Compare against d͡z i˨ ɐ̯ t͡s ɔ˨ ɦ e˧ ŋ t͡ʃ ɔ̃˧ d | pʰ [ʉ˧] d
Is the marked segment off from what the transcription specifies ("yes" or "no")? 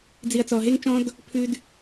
no